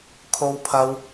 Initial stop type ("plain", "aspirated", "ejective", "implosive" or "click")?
aspirated